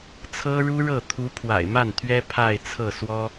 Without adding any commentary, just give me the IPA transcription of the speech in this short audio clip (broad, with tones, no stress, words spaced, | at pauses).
t͡sʰɤ˥ɻu˥ɻɤ˥˩ t̪ʰu˧˥ pʰwa̰˨˩ɪ̯ma˥˩nt̪ʰɥɛ˥ pʰa˥˧ɪ̯t͡sʰɤ˥˩swɔ˥